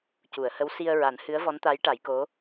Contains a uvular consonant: no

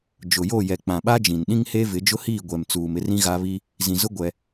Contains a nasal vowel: yes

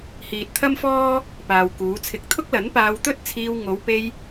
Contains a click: no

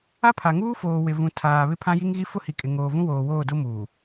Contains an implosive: no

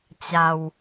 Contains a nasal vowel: no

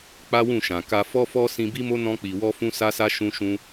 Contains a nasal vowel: yes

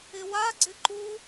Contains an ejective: no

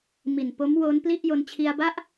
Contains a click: no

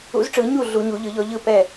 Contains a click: no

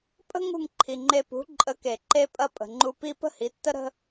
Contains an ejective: yes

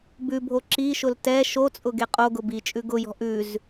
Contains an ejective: yes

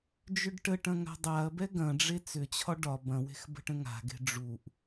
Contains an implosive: no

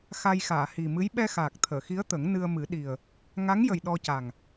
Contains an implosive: yes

